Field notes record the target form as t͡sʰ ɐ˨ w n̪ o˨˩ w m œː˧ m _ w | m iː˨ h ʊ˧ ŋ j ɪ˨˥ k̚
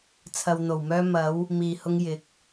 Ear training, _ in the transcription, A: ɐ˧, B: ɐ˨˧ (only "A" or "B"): B